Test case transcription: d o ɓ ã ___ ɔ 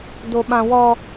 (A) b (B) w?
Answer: B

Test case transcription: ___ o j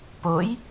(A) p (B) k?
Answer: A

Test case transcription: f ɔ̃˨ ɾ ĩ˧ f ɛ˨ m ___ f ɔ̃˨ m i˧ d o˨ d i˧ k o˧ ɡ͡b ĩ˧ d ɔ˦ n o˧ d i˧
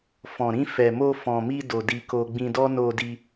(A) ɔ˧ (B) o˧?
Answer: B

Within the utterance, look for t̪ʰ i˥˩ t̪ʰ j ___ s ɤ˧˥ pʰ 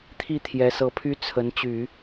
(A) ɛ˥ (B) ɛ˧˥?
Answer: B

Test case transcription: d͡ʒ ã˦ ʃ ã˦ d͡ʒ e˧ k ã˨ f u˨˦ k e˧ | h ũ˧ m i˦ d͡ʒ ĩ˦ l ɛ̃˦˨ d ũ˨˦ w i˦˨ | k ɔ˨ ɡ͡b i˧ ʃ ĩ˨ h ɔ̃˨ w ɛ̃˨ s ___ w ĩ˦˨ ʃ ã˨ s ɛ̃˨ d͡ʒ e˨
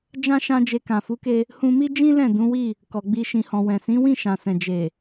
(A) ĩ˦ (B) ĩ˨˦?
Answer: B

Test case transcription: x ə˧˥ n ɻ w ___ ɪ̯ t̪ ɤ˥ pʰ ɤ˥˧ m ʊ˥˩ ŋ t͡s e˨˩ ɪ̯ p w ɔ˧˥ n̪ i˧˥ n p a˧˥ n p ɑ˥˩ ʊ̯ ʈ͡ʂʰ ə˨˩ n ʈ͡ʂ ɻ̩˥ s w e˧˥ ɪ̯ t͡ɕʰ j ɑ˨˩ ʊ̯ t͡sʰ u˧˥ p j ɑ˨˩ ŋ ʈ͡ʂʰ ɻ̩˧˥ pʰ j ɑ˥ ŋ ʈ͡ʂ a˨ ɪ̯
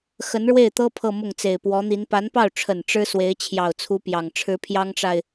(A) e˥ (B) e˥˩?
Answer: B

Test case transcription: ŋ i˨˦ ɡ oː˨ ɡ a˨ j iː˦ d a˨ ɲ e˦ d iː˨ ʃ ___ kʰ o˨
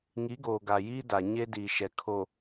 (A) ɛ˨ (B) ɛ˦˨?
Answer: A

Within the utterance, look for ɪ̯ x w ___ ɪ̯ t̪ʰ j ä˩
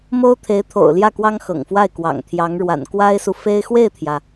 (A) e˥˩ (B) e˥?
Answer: A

